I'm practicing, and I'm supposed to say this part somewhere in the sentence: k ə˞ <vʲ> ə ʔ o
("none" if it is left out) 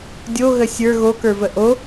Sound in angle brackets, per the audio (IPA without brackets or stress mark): v